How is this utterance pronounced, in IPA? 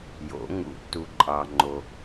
jo̰˨˩˦ŋṵ˨˩˦tːu˧ ǃʼɑ˧ŋ͡ǃo˧

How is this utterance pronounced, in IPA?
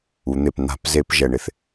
u˩˧n̪e˧˩p n̪a̤˧˩˧pze˧˩˧p ʒɛ˧˩ɳɪ˧θ

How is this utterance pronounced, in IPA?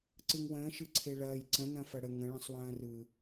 ǀɯŋwə̃ː ʃɯǀʰeɭɐːj ǀə̃ nɐ̃fɐɽə ŋə̃ ɭə̃sˤwɐ̃ːrɯ

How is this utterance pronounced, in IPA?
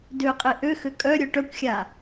døqʼe ʔøxø kʼœ ɾʲœʈœkʷxʲa

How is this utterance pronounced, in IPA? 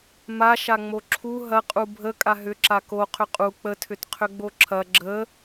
maʃaŋ͡mo ǁʰu ɦɐ qʼubʱə kʼaɦʏǁa ko qʰʏqʼu k͡pətʰʏt qʰʏɡ͡boǁʰɐ ɡ͡ǁə

